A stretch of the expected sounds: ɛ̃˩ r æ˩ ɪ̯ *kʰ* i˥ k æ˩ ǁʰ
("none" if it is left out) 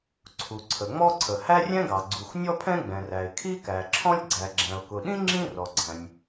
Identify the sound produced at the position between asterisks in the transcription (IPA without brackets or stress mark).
kʰ